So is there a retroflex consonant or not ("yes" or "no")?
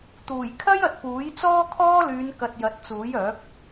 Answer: no